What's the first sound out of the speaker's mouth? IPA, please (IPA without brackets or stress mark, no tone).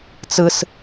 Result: t͡s